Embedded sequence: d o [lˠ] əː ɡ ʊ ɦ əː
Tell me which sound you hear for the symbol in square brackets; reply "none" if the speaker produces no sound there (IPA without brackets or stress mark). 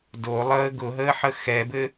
lˠ